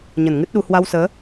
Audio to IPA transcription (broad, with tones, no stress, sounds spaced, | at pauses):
ɲ ə˧˩ n ŋ ɨ˦˥ t̚ ɗ u˧ h w a˧ w s əː˨˦